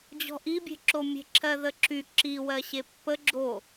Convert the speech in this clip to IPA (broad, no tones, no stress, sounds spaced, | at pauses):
d͡ʑ ɔ̤ ʔ i bʲ e̤ ǁ o mʲ e̤ ǁʰ ɜ ð ə ǁ y ǁ i w ɜ ɕ e pː ə ɡ͡ǁ o